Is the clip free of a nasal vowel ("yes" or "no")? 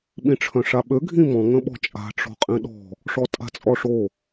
no